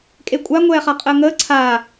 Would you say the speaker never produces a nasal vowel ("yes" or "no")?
yes